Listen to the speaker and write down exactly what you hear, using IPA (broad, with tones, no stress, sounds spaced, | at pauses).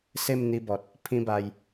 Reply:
s e˥˧ m n̪ i˧ b ɔ˨ t̚ | pʰ ĩ˦ b a˧ j